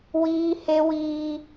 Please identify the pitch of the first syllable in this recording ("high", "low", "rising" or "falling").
high